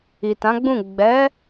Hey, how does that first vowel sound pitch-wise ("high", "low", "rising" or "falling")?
low